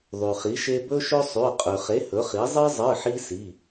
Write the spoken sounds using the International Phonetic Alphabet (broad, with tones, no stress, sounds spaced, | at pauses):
ðˤ ʉ˩ χ i˩˥ ʃ e˦ b ɵ˦ ʃ ɵ˦ sˤ ʉ˩˧˩ qʼ ʉ˩ χ e˩˥ h ɵ˩˥ χ i˩˥ zˤ ɨ˦ zˤ ɨ˩˧˩ ħ i˦ s i˩˧˩